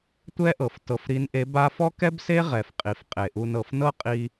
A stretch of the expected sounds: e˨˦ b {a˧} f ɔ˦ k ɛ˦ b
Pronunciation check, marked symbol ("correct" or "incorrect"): correct